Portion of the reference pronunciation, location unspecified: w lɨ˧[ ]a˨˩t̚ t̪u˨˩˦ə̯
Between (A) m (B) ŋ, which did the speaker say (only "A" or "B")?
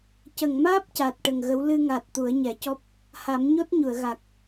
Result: B